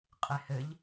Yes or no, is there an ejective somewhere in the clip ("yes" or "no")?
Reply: yes